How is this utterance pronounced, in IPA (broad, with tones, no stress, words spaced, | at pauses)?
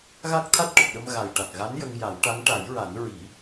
ɣa˦˥k̚t̪ʰa˦˥t̚ʈə˨˩k̚ɗə˧m ɣa˨˩jʈa˨˩k̚ɣa˧˥n jə˧ŋja˨˩˦wʈa˧˥ŋ ʈa˨˩˦jɹa˨˩˦n ɹi˨˩˦